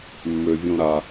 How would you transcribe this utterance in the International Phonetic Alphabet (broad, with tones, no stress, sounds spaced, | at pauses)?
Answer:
mː ø˩ vʲ õ˨ ɾ a˩